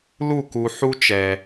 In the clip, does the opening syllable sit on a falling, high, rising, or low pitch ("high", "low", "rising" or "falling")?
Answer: falling